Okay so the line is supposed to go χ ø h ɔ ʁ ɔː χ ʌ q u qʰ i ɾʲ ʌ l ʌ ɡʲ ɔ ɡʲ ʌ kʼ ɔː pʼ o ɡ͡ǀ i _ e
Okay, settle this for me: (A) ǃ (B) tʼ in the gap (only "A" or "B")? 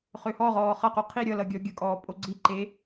A